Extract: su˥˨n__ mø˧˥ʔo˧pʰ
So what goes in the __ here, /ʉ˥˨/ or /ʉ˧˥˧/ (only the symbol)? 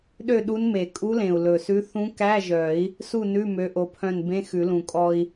ʉ˧˥˧